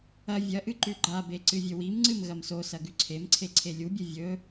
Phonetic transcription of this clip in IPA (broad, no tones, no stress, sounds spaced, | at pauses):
ɐ vʲ ɐ ʔ ɨ ǃ ʉ ɡ͡ǃ a b e ǀ ɨ vʲ ɵ w i m ŋ͡ǀ ɨ m ɣ ɐ m s o s ɐ ɡ ʉ ǀʰ e m ǀʰ e ǀʰ e lʲ u bʲ ɨ vʲ ɵ